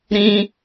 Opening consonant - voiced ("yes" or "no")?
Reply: yes